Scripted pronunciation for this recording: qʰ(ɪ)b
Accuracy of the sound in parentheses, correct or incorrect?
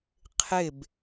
correct